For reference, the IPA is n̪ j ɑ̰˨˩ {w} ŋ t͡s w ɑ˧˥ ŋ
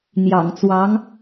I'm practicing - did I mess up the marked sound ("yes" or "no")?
yes